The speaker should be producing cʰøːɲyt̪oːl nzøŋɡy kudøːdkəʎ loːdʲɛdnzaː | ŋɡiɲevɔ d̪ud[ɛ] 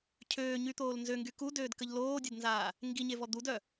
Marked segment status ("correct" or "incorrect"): incorrect